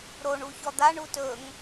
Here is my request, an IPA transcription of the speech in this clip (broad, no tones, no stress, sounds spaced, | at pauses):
ɾ o ɳ u ç ɔ d̪ a ɳ u t ɵ ŋ